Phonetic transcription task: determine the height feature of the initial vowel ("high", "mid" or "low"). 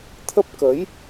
mid